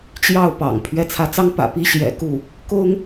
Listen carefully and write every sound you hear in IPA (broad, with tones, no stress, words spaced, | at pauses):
t͡ɕjɑ˥˩ʊ̯ pɑ̰˨˩ŋpʰɥɛ˥˩ t͡sʰä˧˥t͡sɑ˥ŋ pä̰˨˩pi˥ɕjɛ̰˨˩ ku˥˩ | kʊ˥ŋ